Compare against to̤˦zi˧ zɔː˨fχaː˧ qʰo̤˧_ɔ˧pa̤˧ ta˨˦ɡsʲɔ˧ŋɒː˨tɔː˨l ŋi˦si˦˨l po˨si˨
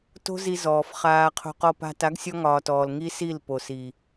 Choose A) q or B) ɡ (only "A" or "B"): A